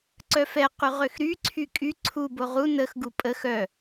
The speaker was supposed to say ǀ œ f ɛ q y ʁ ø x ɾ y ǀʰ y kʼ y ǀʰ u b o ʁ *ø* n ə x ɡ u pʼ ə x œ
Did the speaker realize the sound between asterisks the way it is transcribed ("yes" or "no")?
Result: no